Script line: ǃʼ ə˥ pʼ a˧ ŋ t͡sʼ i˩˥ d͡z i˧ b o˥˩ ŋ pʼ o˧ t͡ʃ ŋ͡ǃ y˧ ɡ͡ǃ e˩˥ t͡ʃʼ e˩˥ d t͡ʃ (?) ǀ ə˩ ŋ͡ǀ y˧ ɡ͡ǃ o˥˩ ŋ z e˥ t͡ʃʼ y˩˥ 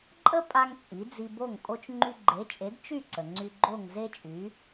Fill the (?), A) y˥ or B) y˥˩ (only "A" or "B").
B